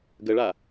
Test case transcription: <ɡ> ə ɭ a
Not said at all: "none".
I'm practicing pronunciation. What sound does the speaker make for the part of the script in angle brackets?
ɡ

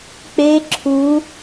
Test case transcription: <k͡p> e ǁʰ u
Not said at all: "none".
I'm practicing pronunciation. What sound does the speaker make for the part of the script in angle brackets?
k͡p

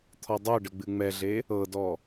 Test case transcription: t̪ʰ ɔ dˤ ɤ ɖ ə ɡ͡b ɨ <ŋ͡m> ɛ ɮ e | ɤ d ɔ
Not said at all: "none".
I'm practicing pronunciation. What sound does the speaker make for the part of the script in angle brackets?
ŋ͡m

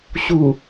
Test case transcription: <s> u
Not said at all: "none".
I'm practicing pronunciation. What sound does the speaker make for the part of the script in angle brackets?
ɕ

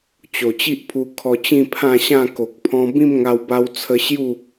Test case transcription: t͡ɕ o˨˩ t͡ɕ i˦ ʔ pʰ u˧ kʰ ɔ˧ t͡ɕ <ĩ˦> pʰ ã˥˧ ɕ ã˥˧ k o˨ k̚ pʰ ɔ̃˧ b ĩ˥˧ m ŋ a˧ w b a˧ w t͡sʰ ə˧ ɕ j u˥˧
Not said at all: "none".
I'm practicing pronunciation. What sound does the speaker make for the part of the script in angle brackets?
ĩ˥˧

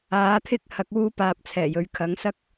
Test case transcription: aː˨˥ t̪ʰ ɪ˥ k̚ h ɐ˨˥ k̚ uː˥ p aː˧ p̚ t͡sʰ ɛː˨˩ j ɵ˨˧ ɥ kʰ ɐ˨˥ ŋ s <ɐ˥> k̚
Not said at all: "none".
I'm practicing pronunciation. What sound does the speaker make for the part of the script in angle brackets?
ɐ˥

